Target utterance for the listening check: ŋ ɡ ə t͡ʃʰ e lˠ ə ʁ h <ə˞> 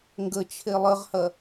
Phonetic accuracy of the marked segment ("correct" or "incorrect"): incorrect